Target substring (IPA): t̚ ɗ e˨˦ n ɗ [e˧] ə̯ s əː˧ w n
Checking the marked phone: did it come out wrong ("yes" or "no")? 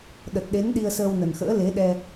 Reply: yes